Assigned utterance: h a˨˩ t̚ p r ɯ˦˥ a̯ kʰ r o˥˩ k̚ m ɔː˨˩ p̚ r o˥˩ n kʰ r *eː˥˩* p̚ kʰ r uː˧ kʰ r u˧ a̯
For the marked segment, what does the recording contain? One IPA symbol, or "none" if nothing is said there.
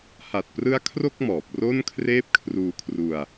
eː˥˩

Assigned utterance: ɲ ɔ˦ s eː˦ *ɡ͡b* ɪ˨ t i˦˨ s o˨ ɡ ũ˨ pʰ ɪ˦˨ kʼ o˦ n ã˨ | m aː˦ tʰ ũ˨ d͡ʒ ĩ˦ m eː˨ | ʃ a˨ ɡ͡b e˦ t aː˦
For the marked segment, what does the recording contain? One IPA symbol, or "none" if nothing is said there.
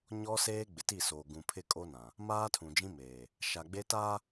ɡ͡b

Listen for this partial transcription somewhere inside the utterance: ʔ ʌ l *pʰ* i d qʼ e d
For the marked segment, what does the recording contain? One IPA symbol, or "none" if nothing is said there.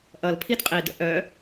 pʰ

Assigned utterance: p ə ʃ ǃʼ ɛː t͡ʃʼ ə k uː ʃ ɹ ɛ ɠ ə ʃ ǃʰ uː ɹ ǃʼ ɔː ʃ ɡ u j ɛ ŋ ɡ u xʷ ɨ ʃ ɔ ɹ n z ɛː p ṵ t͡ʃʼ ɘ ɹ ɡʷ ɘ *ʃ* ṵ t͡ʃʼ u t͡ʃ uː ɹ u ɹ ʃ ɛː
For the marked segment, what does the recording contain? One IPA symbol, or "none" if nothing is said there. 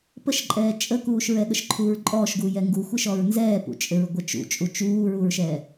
t͡ʃ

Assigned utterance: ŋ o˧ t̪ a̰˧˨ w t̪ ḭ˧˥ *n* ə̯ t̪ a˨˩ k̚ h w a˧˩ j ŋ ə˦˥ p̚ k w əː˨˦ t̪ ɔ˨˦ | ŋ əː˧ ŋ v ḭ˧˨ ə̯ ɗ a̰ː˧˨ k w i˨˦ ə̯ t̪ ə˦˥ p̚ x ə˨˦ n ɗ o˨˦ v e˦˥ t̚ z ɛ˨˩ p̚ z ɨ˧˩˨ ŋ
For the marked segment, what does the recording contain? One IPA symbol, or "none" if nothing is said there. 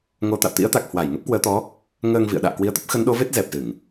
none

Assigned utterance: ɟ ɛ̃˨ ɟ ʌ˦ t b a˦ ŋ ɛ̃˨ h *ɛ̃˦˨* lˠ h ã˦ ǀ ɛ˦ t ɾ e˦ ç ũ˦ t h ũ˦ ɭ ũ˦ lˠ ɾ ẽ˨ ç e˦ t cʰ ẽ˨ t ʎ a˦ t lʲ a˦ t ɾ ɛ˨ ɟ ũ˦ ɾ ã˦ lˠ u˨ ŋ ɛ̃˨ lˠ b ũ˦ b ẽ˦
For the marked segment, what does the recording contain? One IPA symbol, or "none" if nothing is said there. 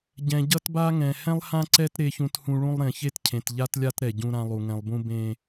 ɛ̃˦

